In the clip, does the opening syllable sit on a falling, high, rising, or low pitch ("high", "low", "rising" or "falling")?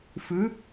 rising